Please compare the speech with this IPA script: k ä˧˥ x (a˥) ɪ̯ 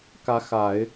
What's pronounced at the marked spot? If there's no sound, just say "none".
a˨˩˦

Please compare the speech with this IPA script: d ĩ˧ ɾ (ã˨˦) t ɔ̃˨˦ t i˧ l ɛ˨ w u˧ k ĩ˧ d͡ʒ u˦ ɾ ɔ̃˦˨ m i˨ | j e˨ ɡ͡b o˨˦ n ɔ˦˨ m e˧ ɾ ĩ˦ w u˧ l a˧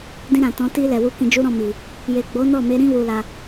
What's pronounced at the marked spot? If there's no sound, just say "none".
ã˨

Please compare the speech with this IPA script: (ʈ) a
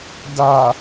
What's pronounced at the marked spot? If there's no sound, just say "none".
d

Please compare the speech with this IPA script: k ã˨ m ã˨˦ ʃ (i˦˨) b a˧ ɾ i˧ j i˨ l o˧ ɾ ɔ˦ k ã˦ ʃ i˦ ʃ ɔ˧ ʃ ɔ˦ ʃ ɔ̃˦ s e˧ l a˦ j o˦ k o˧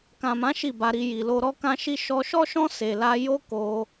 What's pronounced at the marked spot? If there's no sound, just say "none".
i˦˨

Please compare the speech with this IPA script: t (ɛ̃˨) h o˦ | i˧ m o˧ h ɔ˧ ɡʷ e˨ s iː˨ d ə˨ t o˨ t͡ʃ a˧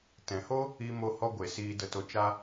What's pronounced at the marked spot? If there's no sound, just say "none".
ɛ̃˨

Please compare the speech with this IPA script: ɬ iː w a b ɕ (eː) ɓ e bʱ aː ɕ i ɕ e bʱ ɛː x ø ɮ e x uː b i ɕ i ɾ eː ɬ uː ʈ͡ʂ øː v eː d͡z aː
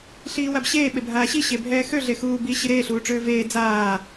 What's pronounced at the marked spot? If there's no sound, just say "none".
eː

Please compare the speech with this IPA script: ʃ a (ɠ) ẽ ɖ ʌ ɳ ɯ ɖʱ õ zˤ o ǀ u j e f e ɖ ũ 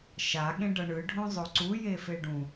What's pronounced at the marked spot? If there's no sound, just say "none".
ɠ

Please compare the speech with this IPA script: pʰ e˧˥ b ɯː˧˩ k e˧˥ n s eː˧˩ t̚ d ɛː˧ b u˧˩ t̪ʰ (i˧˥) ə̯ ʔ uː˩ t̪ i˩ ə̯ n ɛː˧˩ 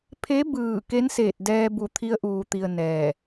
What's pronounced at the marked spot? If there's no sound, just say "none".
i˧˥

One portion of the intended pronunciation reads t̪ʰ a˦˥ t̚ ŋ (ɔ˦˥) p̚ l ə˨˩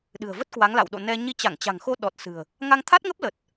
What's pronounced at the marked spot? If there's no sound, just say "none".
ə˦˥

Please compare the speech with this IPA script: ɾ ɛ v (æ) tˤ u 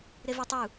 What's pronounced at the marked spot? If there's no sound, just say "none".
ɛ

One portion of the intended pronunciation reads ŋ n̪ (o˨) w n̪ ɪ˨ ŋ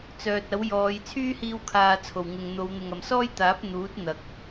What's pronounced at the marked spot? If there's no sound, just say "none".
o˨˧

